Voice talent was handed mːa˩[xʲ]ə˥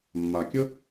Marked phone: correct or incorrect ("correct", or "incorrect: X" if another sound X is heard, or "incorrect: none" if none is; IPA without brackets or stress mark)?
incorrect: kʲ